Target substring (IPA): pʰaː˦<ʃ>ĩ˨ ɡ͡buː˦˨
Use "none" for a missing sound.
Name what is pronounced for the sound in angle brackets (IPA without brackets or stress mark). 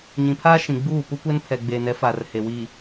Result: ʃ